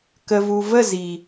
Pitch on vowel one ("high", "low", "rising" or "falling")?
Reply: low